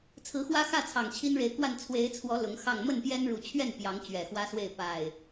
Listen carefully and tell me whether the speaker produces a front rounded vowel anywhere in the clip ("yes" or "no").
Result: no